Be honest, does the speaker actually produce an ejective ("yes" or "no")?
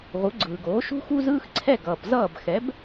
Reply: no